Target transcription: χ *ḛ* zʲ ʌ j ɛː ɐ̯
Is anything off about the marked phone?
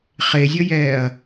yes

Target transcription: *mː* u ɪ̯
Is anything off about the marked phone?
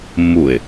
no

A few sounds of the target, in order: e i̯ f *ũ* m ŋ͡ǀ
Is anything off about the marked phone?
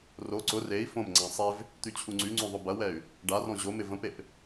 yes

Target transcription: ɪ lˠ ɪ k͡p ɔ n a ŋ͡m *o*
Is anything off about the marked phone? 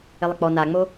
no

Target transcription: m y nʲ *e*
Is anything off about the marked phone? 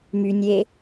no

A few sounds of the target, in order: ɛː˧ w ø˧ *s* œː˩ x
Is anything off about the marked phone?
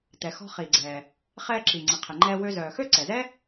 yes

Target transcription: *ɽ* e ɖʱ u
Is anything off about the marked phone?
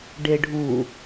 yes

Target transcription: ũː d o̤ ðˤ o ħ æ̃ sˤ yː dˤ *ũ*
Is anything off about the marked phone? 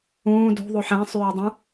no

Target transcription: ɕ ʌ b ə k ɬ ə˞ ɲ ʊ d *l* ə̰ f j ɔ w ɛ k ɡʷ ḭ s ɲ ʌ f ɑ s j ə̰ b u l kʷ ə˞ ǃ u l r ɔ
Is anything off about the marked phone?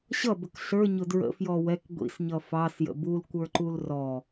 yes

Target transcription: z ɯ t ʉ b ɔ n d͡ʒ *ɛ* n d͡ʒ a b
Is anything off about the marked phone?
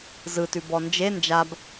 yes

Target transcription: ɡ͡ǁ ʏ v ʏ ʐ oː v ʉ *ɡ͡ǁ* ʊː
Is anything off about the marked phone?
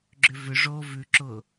yes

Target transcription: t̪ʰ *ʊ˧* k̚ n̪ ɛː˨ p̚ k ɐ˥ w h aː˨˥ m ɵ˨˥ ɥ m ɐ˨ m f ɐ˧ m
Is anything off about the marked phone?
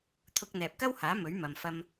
no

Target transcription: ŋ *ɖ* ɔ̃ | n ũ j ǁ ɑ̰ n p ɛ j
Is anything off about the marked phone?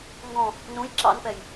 yes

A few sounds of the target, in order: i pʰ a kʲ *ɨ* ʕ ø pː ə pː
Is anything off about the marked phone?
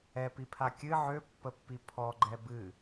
no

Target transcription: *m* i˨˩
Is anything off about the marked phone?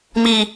no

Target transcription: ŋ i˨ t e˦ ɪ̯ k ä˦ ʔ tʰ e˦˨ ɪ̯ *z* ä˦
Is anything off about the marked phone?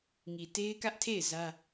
no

